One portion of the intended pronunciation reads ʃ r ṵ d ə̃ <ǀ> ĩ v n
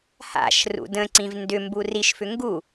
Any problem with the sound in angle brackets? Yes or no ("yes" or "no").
no